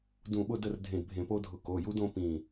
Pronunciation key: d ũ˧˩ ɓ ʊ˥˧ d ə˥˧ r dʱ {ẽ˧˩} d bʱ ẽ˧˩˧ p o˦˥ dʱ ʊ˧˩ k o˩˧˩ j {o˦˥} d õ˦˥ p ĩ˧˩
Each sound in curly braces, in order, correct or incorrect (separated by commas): correct, incorrect